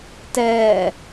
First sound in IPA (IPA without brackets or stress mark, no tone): t